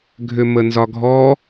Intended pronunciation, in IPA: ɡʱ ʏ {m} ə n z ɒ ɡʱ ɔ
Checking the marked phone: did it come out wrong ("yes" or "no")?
no